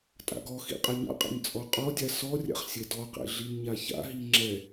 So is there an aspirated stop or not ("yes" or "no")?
no